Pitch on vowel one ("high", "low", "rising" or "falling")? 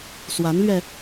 rising